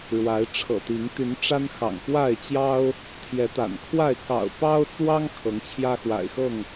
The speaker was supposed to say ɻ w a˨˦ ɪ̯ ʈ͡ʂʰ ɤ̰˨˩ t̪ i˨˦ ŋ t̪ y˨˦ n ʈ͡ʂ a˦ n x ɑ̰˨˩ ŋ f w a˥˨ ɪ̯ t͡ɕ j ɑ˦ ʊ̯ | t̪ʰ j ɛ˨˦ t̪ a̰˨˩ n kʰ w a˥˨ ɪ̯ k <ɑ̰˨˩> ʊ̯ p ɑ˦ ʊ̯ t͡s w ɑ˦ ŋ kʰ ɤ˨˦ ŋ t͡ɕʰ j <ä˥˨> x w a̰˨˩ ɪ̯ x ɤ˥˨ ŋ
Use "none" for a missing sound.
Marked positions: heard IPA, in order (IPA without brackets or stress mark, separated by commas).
ɑ̰˨˩, ä˦